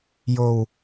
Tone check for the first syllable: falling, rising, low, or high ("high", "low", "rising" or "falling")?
high